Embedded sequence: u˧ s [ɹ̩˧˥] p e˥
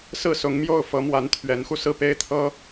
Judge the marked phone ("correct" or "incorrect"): incorrect